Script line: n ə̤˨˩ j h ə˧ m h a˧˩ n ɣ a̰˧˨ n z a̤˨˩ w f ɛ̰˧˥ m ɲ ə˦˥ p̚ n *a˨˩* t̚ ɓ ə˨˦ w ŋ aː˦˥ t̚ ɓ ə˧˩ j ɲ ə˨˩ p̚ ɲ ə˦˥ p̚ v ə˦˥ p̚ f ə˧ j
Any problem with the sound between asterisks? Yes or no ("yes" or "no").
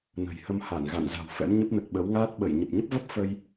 yes